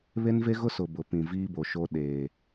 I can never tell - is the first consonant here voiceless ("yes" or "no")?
no